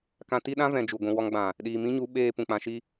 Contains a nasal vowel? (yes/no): yes